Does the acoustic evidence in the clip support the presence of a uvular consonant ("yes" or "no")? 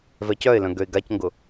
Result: no